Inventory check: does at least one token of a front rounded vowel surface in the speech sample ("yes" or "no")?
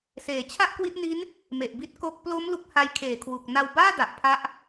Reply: no